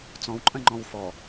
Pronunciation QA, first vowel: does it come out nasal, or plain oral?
nasal